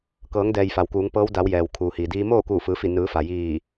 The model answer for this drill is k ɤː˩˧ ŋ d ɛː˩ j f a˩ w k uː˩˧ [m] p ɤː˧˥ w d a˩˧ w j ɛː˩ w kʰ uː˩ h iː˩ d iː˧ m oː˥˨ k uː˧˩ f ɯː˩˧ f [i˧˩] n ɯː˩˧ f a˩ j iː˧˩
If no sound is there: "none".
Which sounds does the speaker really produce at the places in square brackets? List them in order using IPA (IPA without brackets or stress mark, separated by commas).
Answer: ŋ, i˧˩